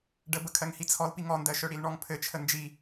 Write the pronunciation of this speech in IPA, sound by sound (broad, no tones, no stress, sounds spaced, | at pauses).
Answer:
ɖ ə b ə kʰ ɜ ŋ h i t͡sʰ ɔ l p i ŋ ɔ n d ɜ ʃ œ ɽ i l ɳ ɔ ŋ pʰ ɘ t͡ʃʰ ə n d͡ʒ i